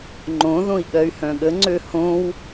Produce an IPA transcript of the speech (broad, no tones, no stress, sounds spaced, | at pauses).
ŋ͡ǃ õ ð õ i̯ ɠ ɜ y̯ h œ̃ ɠ ə ŋ͡ǀ ø h õ w